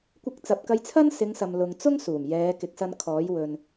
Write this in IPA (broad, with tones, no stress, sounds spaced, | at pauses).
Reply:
kʷ ɪ˧ k̚ t͡s ɐ˨ p̚ k ɐ˧ j t͡sʰ ɐ˥ n s ɪ˨˧ ŋ s ɐ˨ m l ʊ˨ ŋ t͡s ʊ˥ ŋ s uː˨˩ m j ɛː˨˧ k ɪ˨˥ k̚ s ɐ˧ n kʰ ɔː˨˥ j w ɵ˨ n